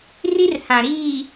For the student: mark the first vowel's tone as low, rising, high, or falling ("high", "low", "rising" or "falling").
high